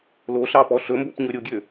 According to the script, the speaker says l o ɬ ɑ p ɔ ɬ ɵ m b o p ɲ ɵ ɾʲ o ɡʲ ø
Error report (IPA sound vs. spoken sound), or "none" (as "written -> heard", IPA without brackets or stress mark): none